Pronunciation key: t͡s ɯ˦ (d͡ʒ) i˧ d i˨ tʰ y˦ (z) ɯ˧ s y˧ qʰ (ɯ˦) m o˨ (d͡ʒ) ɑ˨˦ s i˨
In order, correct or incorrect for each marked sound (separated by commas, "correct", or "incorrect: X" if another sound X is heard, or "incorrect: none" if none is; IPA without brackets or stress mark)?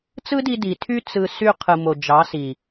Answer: incorrect: d, incorrect: t͡s, incorrect: ɯ˨, correct